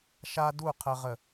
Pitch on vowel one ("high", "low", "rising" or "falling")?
high